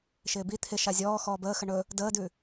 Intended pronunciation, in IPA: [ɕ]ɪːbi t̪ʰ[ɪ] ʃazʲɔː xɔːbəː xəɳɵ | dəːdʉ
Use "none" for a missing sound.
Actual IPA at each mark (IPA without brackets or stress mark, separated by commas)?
ʃ, ɪ